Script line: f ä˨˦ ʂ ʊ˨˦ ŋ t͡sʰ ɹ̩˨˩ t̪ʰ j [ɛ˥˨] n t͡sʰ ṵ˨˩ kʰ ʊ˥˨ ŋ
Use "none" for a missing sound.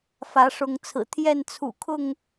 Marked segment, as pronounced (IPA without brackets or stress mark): ɛ˥˨